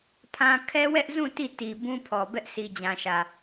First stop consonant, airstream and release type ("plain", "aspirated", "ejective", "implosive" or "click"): aspirated